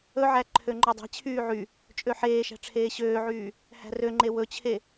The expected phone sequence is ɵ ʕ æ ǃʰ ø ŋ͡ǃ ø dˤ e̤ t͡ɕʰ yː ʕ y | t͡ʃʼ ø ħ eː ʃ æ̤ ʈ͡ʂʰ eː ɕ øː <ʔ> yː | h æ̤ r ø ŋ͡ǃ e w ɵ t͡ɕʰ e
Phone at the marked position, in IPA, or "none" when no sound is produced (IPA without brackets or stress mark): ʕ